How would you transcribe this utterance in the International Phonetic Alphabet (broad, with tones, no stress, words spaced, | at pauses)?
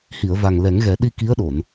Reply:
hi˨˩˨ə̯va˨˩ŋlɛ˨˩˦ŋɣɛ˨˩˦ ɗi˧ ki˧˥ə̯ɗo˨˩˨n